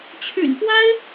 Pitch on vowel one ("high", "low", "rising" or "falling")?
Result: low